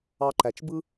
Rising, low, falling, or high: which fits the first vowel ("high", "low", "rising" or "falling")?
low